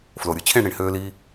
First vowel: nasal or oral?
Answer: oral